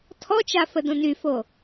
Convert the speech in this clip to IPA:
tʰɔt͡ʃa fədõnyfo

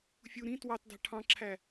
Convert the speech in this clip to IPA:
fʲu ɾĩ twɑtdɑ̤ ʈʰɑ̃ǁʰæ

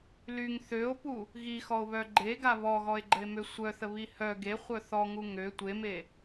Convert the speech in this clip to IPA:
lyŋ θøo̯pu | ɣixɔo̯βœ ɡ͡ǃeɡa βɔɣɔe̯ɡ͡ǃəe̯mø sʷœθəβi hœ ɡeχʷœ θɔŋu ŋø tʷeme

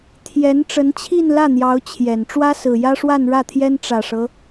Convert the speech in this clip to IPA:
t̪ʰjɛ˧˥n ʈ͡ʂə˧˥nt͡ɕʰi˥˧nlä˥˩n̪jɑ˧˥ʊ̯ t͡ɕʰjɛ˨˩n ʈ͡ʂwä˥sɹ̩˨˩jä˥ʂwa˥˧n ɻä˥˩t̪ʰjɛ˥n ʈ͡ʂä˨˩ʂɤ˦

